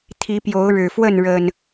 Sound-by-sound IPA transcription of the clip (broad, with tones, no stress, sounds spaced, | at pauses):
t̪ʰ i˨˦ p j o˨˦ ʊ̯ ɻ ɻ̩˨˩ f w ə˥˨ n ɻ ə˨˩ n